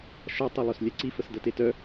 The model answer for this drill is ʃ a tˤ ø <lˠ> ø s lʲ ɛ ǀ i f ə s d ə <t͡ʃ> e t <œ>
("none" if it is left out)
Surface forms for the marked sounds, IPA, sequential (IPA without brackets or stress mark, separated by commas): lˠ, t, œ